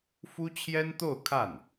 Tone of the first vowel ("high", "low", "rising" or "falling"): high